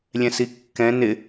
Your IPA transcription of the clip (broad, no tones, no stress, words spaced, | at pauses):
lʲɛ̃sikːɛ̃ nɪ